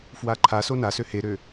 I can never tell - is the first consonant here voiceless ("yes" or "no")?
yes